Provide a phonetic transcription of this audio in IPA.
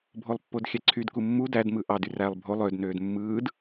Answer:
bʱolˠpːodxʲæǀʰyd kumːu dæd mɯʔɑd yrælˠ bʱo lˠød nøːdmːɯːd

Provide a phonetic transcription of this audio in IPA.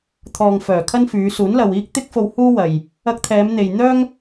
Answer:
t̪ʰɔː˨ŋfœː˨˩kʰɐ˥nfyː˨˧ suː˨˥nlɐ˨w iː˧k̚t̪ɪ˧k̚fo˨w huː˥wɐ˨j | ɐ˧k̚t̪ʰɛː˨˧mn̪e˨j n̪œː˥ŋ

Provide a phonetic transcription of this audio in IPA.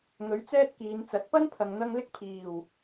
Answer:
ŋɵ˨˥ɥt͡sɛː˥t̚kiː˨˧nt͡sɐ˨˥t̚ pɐ˥n pʰɐ˧ŋn̪ɐ˥ŋ lɪ˥k̚pʰiː˨˩w

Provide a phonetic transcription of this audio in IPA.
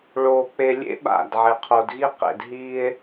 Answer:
ɭoː˨ k͡pe˨lʲḛ˦ ɓa̰˦˨d ʕe˨qʰo˨dɣi˦ qḛ˨dɦiː˦e̯

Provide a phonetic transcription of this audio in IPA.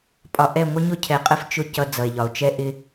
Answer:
pʼɒ˨ʔɛ˦˨ ŋʷə˦ɲʊ˦cʰɛ˨qʼə˦f t͡ʃʊ˦ cʌ˦d͡zʌ˨e̯ʎɒ˨o̯ t͡ʃɛ˦ʔɪ˦

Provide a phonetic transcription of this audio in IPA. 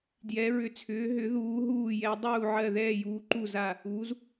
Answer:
djɛ˨˦ɹʏ˨˦t͡sʰʏː˨˦ ɦʏ˨˦ðuː˨˦ ɦuː˦˨jɛ˨˦ dˤuː˦˨ʕɜ˦˨ ðɛː˦˨juː˨˦ǃu˦˨ za˦˨ | u˨˦z

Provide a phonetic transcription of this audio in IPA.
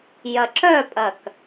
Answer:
jɐǁœpʼɐk

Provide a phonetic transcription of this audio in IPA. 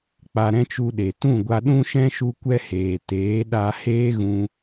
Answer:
k͡pa˧ɾɛ̃˦t͡ʃu˧ɗe˨ tũ˦˨ɡʷa˧ɗũ˦ʃɛ̃˦ ʃu˦kʷɛ˦heː˨ teː˨˦ɗa˧ heː˦ɣũ˧

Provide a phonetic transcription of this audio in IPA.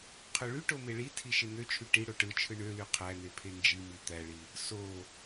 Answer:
qʰøɭyʈo meɭitʰi ʃen̪øt͡ʃʰy ʈi ɽoʈɯt͡ʃʰɯ ɳøly qʰæn̪e pʰend͡ʒimi t̪æɭi | so

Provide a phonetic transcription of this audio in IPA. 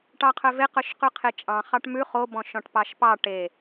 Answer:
ʈɑqʰœve qœʃqʉqʰet͡ʃʼɑ̃ χɑʈmʉ χo bɔ̃ʃɔ̃ʈpɑʃpɑ ʈe

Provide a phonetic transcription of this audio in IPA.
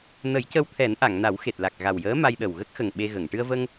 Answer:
nə˨˩˦jcə˧wt̪ʰɛ˨˩˦nʔa˨˩˨ŋ na˨˩˦wxe˨˩t̚la˨˩k̚ ɣa˨˩wjəː˧˥ ma˧jɗə˨˩w ɣə˦˥k̚xə˨˩ŋ ɓe˧ɣə˨˩˨ŋ ʈɨ˧ə̯və˧ŋ

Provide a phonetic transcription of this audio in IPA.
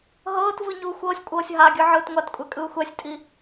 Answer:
ɦɤːtvɯ ɲuːxʷɤːsʲkʷʼɤːsʲ ɦaɡʲɯ ʕɯːtŋʷatkʷʼɛ kʼɯːxʷɛsʲtʼi

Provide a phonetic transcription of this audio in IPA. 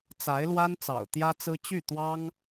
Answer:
t͡sa˧˥ɪ̯lwa˥n t͡sɑ̰˨˩ʊ̯t̪jä˥t͡sɹ̩˥ t͡ɕy˥˩t̪wɑ˥ŋ

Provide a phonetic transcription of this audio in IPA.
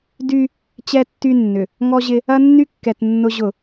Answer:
dy˦ | t͡ɕɛ˦tːy˦nːʏ˨ | ŋɔ˦ʑɪ˦ | ɐ˦nːy˦kːɛ˨t nːʊ˦ʑʊ˦˨

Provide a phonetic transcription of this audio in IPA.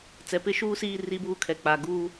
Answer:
t͡sɛ˨pɪ˦ ʃuː˦siː˦˨ ri˦buː˦kʰɛ˨ k͡pa˨ ɡuː˦

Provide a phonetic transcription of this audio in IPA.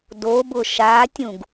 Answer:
dobʊ ʃatʲũɡ

